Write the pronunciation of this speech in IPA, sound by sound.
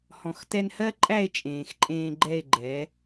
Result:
h ɔ̃˨ x t ɛ˧ n h ɜ˦ ǃʼ æ˦˨ e̯ t͡ʃʼ ẽː˨ x ǃʼ ẽː˧ ɡ͡ǃ ɛ˦˨ e̯ ɡ͡ǃ ɛ˨˦

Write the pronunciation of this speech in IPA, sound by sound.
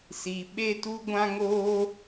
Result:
s i˧ ɓ e˦ t u˦ ɡʷ ã˦ ŋ oː˦

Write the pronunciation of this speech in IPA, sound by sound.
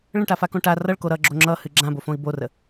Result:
ɭ ə̃ ʈ a f a k õ ʈ a r ʌ ɭ k o ɾ ʌ ɡ͡ǁ o ŋ͡ǁ ʌ h ɨ ɡ͡ǁ ã b o f õ i̯ b o r ə

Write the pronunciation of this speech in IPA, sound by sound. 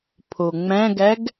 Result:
pʰ o ŋ͡m æ̃ ɡ æ ɡ

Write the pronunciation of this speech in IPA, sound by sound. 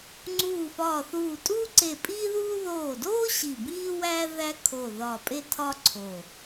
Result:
ŋ͡ǀ uː˧˩ f ɒː˧˩ θ uː˧˩ tʼ uː˥ ǀ e˧˩ pʼ iː˥ ð uː˥ ð oː˧˩ d oː˥ ɕ i˧˩ b iː˥ w æ˥ ð æ˥ kʰ o˧˩ ð ɒ˧˩ pʼ e˥ tʰ ɒ˥ ǀʰ o˧˩

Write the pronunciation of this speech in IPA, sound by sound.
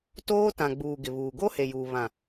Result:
t oː˦ t ã˨ ɡ͡b uː˨ ɡ ɪ˨ β uː˨ ɡ o˦ h e˨ j uː˨ β ã˨

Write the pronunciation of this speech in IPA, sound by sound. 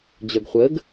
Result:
d͡ʑ œ ɡ χʷ əː ɡ

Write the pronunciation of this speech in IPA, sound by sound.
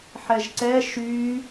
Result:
ħ ɛ ʒ ǀ ɛ ʃ y

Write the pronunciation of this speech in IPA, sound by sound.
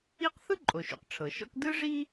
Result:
i˥ q θ ɯ˥ ǃʼ o˩ ʃ ṵ˩ q ʈ͡ʂʰ ɤ˩ ʃ ɔ̰˥ k d ɯ˥ ʐ i˥

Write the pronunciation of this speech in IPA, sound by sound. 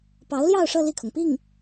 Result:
p ɑ˧˥ ʊ̯ l j ɑ˥˧ ʊ̯ ʂ ɤ˥˧ l i˥˩ kʰ ʊ˩ ŋ p i˥˩ ŋ

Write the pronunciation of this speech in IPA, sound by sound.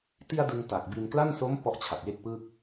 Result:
t i˧ a̯ d ɯ˧ ŋ t a˨˩ k̚ b i˧ n k l a˥˩ n s o˦˥ m p ɔ˦˥ ʔ t͡ɕʰ a˨˩ t̚ j e˥˩ k̚ p ɯ˥˩ k̚

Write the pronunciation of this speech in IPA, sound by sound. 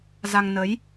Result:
z a˧ ŋ n ə˨˦ j

